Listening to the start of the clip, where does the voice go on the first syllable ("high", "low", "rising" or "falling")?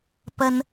high